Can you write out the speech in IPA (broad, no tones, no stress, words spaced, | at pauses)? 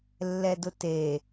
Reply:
lːɛdʊte